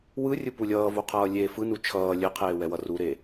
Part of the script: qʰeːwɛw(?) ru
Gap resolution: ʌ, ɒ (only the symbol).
ʌ